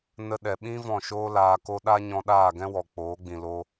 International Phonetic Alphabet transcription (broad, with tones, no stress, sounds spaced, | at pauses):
n ə˧ ɗ ɛ˨ ɓ ĩ˦ v ɔ̃˦˨ ʃ oː˦ l aː˧ k o˦ ɗ a˦ ɲ ɔ̃˧ ɗ aː˦˨ ɡ ɛ̃˦ w ɔ˨ k͡p oː˨˦ ɡ͡b ĩ˨ l o˧